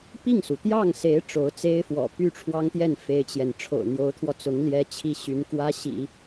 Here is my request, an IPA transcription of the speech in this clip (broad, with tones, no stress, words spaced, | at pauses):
pi˥˩ŋsu˩t̪jɑ˥˩ŋse˧˥ɪ̯ ʈ͡ʂo˧˥ʊ̯t͡se˥ɪ̯fwɔ̰˨˩ py˥˩ʈ͡ʂʰwɑ˥ŋt̪jɛ˥˩n fe˥ɪ̯t͡ɕjɛ˨n ʈ͡ʂʰo̰˨˩ʊ̯n̪jo˧˥ʊ̯t̪ʰwɔ˧t͡sʊ˧˥ŋ ljɛ˥t͡ɕʰi˥˩ɕy˧˥n kwä˥ɕḭ˨˩˦